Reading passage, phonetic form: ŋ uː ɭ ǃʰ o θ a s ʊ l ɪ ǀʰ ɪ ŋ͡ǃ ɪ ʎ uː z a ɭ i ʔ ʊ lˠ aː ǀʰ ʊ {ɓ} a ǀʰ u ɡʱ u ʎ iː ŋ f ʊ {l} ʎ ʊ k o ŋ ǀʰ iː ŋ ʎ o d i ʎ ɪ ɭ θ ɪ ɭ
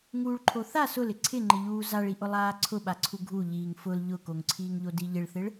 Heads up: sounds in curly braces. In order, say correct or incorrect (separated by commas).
correct, correct